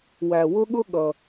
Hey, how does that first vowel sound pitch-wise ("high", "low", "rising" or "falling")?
low